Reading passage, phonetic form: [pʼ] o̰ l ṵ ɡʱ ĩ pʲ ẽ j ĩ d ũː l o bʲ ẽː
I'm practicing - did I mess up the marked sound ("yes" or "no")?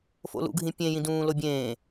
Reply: yes